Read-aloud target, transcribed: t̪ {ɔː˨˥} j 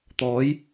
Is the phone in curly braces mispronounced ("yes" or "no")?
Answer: no